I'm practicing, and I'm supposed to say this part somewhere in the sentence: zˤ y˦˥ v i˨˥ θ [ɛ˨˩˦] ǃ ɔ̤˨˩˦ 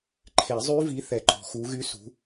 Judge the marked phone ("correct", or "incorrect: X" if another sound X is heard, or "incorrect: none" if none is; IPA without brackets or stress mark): correct